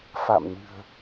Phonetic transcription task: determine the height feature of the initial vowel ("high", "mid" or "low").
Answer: low